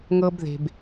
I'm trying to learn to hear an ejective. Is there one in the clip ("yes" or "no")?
no